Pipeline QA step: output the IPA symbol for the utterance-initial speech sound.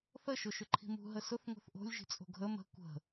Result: θ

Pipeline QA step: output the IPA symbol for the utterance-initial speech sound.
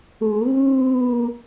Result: u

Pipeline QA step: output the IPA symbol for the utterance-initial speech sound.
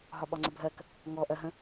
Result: ɦ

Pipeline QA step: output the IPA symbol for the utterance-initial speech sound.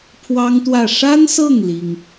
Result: pʰ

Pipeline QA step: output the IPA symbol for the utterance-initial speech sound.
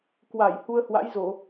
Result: k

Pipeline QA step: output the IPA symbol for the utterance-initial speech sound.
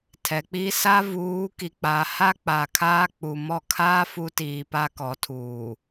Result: tʰ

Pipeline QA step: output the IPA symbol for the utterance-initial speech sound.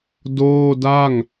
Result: d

